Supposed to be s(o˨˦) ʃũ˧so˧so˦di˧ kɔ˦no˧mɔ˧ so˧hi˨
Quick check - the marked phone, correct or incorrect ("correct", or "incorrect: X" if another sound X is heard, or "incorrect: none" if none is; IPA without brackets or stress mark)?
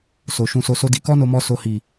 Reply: incorrect: o˨